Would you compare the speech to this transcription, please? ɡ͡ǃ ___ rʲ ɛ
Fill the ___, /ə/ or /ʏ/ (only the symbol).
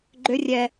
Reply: ʏ